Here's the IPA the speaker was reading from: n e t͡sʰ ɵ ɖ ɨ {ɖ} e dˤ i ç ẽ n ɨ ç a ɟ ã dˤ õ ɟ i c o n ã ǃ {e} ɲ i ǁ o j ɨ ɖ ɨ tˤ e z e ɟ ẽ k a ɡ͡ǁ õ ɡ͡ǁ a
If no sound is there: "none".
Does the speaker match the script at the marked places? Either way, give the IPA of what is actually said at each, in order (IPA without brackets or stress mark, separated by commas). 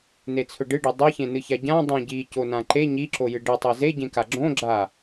ɖ, e